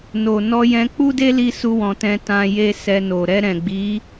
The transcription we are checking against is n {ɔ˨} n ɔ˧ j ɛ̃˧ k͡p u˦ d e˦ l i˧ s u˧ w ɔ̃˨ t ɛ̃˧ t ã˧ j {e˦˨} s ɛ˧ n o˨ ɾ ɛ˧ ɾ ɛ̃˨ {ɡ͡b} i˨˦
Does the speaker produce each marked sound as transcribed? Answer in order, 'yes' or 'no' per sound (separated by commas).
no, no, yes